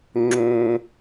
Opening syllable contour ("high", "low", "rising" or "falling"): high